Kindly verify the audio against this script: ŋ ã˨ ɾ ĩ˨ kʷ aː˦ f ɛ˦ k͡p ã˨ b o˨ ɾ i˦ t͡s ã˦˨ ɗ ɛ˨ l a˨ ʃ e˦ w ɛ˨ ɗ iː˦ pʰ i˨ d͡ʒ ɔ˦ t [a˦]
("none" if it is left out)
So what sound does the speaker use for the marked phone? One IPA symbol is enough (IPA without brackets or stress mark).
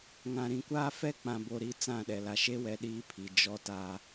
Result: a˦